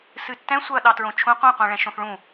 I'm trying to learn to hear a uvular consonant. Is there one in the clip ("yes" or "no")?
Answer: yes